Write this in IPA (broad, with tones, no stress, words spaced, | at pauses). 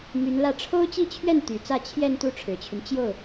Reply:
my˧˥nlä˥˩ ʈ͡ʂʰo˥ʊ̯t͡ɕi˥˧t͡ɕʰɥɛ˥˩n t̪y˨˩t͡sä˥˧ t͡ɕʰjɛ˥˧nt̪u˥˩ ʈ͡ʂʰɻ̩˨˩t͡ɕʰy˦n t͡ɕjo˥˩ʊ̯